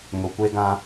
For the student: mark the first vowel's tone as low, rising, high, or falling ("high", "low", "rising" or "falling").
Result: low